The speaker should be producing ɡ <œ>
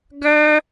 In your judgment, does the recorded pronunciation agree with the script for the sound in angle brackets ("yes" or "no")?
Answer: yes